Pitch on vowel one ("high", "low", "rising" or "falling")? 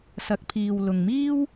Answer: rising